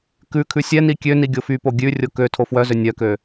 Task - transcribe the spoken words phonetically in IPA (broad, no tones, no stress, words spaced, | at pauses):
kʉkʰʉ sʲɛ nikʲøni ɡʲofypo ɡʲʉrʲo kø tʰofwœzø nʲœkø